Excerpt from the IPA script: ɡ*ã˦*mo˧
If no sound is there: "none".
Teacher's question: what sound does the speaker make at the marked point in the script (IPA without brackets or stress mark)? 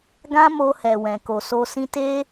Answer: ã˦